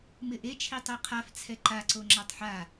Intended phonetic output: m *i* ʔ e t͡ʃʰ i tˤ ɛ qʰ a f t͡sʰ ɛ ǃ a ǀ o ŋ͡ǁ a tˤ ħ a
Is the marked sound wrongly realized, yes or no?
yes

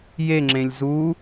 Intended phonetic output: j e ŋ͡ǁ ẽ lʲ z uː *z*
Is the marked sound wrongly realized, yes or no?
yes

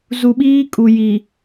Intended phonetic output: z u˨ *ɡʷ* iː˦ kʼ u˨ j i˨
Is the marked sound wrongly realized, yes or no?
yes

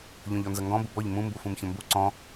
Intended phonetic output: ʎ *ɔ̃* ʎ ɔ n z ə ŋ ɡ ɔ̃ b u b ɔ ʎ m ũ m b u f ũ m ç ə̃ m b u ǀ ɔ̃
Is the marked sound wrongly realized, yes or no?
no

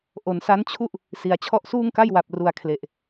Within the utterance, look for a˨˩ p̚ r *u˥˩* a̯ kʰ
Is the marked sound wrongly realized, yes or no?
yes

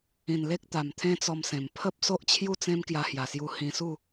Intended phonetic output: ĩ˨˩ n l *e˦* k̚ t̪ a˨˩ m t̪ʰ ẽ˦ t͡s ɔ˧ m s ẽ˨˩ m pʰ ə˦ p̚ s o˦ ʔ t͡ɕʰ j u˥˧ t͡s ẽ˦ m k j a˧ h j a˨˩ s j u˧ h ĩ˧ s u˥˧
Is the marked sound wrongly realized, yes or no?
no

